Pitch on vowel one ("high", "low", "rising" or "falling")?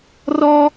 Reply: high